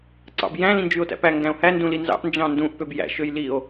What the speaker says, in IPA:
ǀ ɑ̰ b j æ̃ l ĩ n d͡ʒ y o̯ t æ̰ p æ ŋ ɡ æ̃ o̯ h æ n d ũ l i n z ɑ̰ ʔ n d͡ʒ ɑ̃ n d ũ ʔ p ø b j æ̰ ʃ ø j l i o̯

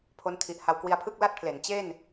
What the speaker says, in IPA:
pʰ o˦˥ n tʰ i˨˩ ʔ h a˧ w k w i˧ a̯ pʰ ɯ˥˩ k̚ l a˥˩ t̚ pʰ l e˩˦ n t͡ɕ e˥˩ n

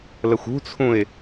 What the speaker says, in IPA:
l ə xʷ ṳ t͡sʰ ũ ɪ̯

